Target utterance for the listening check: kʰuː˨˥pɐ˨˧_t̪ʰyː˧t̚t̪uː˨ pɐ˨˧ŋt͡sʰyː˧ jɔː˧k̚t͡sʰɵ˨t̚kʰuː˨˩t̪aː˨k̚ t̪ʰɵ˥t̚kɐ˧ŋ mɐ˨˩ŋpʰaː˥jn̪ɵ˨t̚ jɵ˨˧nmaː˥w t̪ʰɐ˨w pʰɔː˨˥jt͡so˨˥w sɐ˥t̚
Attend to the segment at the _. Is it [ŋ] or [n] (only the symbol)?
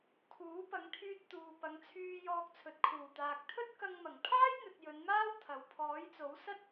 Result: ŋ